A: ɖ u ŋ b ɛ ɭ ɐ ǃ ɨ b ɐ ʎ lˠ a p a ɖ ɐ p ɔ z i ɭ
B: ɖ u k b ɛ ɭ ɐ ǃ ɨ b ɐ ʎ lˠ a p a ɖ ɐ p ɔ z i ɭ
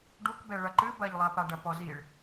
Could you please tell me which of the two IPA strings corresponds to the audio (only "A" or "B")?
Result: B